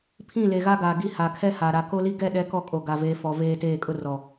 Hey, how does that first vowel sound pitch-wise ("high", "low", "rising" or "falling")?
falling